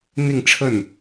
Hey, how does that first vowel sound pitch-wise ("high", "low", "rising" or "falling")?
falling